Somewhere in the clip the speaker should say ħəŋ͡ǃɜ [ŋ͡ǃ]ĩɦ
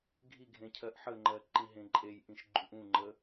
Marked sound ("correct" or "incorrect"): incorrect